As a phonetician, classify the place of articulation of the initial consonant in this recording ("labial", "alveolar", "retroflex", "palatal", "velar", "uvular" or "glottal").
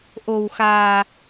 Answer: glottal